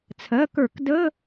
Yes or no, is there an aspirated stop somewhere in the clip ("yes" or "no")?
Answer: yes